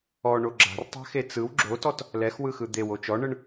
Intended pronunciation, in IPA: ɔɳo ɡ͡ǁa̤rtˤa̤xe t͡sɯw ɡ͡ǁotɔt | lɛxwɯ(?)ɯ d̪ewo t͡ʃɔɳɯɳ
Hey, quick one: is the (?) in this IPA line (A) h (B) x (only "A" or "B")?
B